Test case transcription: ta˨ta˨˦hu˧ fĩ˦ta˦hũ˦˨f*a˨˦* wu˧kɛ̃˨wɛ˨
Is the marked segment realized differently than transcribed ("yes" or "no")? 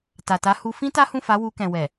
no